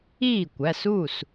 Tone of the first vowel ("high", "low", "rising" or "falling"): falling